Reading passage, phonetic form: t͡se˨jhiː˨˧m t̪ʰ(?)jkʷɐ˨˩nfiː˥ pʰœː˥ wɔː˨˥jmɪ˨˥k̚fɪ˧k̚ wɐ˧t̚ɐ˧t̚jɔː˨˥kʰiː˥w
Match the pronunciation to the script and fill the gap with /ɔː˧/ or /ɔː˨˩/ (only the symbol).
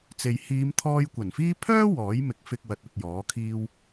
ɔː˧